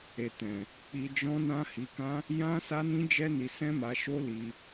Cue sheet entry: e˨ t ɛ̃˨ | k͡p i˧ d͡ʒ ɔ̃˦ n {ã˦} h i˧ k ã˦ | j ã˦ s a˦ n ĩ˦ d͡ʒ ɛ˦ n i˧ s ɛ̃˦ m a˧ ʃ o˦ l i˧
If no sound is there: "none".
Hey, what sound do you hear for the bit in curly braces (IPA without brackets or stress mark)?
ã˦